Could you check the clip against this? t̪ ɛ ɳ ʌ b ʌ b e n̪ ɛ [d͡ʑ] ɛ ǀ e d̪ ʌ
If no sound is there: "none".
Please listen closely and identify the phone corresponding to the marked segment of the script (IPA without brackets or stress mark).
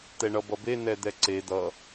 d̪